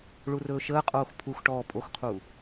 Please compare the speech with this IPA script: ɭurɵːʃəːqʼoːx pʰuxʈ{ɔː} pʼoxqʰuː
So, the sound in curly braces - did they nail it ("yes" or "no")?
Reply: yes